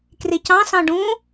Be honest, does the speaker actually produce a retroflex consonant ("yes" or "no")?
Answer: yes